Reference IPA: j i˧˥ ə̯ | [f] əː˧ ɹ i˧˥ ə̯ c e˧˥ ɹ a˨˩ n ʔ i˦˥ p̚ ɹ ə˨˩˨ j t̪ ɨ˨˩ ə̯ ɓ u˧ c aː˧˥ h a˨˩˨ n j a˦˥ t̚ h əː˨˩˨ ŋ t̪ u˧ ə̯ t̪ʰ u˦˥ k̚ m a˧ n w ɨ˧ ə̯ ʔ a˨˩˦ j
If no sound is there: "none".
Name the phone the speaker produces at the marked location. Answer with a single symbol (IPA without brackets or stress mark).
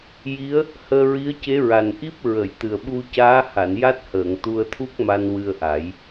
h